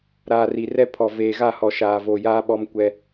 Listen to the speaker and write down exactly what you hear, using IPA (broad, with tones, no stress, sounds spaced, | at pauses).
ɾ aː˨ r i˨ r ɛ˦ pʰ ɔ˨ v eː˨ ɣ a˦˨ h ɔ˨ ʃ aː˨ v oː˨ j aː˦ ɓ ɔ˦ m kʷ ɛ˦